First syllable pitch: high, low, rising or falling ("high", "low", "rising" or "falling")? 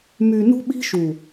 low